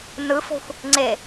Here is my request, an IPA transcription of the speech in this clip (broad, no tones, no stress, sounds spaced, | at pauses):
n ɯ f o̤ xʷ | ŋ͡ǀ e